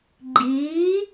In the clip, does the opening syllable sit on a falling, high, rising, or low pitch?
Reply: rising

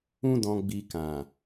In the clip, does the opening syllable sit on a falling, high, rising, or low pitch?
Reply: high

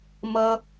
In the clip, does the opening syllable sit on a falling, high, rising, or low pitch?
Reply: high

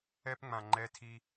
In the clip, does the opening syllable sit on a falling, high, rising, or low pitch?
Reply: high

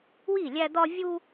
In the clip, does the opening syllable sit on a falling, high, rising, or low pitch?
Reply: falling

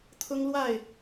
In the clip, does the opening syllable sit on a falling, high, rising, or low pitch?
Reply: high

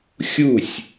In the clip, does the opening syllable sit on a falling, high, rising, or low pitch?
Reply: falling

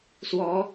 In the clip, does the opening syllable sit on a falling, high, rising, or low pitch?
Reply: rising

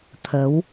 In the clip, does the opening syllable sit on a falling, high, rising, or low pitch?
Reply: rising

